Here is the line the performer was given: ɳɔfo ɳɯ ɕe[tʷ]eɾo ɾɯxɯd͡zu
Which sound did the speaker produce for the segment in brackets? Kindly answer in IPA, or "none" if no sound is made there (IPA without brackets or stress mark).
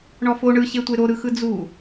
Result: tʷ